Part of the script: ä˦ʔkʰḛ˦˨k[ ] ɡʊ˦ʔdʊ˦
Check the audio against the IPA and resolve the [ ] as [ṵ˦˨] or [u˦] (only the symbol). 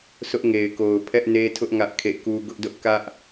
u˦